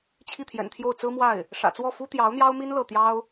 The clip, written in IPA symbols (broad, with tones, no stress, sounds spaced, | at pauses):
t͡ɕʰ i˥˩ t̪ʰ j ɛ̰˨˩ n t̪ʰ j o˥˩ ʊ̯ t͡s ɹ̩˥ m w a˥˩ ɪ̯ | ʂ ä̰˨˩ t͡s w ɔ˥˩ f u˥ t̪ j ɑ˧˥ ʊ̯ n̪ j ɑ˥ ʊ̯ m i˥ n l ɤ˥˩ t̪ j ɑ˥ ʊ̯